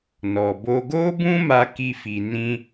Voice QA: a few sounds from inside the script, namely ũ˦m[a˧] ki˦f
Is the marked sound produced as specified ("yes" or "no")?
yes